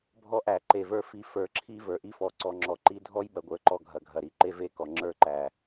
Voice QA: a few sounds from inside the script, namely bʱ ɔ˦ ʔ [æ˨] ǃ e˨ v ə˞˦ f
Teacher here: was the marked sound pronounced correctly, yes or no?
yes